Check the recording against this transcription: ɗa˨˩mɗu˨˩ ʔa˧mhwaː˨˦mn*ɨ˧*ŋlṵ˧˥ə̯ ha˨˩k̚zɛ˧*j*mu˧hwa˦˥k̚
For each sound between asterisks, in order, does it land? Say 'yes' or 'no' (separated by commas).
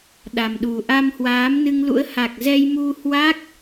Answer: yes, yes